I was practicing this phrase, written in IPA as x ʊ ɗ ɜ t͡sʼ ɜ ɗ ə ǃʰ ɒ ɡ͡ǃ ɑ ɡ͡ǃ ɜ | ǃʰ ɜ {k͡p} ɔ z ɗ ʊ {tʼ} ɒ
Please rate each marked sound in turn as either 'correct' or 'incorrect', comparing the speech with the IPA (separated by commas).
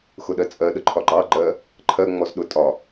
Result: incorrect, correct